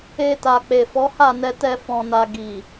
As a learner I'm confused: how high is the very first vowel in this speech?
mid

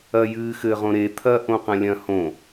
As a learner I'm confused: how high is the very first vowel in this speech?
low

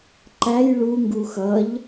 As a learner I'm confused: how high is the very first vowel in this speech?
low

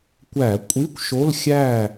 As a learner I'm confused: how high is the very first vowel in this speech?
low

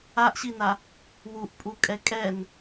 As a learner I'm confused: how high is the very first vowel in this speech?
low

